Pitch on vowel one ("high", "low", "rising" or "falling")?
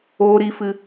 high